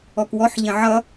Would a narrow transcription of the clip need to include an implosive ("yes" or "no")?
no